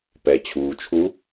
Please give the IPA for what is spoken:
p ɛ˩ t͡ɕʰ uː˩ t͡ʃʰ u˧˥

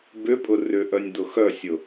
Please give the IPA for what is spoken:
b ʏ pʼ ʊ r ʏ ʔ œ nʲ d̪ ʊ x œ sʲ ʊ

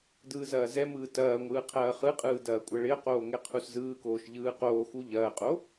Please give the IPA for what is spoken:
d ɯː z ɐː z ɛ m ɯː t ɐː ŋʷ ɯː qʰ ɐː χ ɯ qʼ ɯː d ɐː kʷʼ ɐ ɭ ɪ ə̯ q oː ŋ ɛ qʰ u s z ɯː k oː ʃ ʎ ɯː q oː x u ʎ ɐː qʼ o

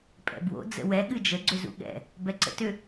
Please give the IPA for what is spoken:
pʼ ɛ̰ b w o̰ d͡z ə̰ w ɛ ɠ ɨ d͡ʒ ə ɡ͡ǀ ʏ z ṵ ɠ ɛ̰ | b ɛ ǀ ə̰ t ʏ

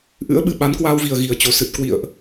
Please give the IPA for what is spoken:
ʔ ɨ̰˧˥ ə̯ ɓ ɨ˨˩ ɓ a˨˦ n k w aː˧ w v i˨˩ ə̯ ɣ i˨˩ ə̯ t͡ɕ o˨˩ s ɨ˨˩ t̚ k w ḭ˧˨ ə̯ ʔ

